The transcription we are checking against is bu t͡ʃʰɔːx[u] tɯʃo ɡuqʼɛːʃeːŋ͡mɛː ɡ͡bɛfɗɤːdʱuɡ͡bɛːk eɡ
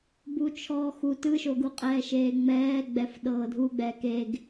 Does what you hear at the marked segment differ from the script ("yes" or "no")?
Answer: no